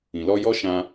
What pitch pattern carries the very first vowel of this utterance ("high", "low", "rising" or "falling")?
low